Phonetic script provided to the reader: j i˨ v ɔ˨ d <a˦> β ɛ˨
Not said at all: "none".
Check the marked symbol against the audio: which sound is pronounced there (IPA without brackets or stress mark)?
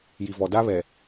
a˦